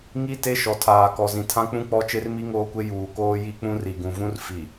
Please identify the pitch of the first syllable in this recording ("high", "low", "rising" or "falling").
high